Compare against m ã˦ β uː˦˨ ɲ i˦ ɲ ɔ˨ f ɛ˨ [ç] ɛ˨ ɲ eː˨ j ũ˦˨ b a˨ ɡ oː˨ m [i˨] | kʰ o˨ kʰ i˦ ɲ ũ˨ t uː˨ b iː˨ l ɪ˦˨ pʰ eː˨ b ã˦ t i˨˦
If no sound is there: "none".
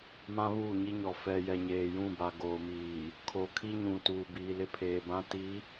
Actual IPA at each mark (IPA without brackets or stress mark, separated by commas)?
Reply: j, iː˨